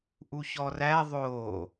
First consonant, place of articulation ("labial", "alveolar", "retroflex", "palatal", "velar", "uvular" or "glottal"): glottal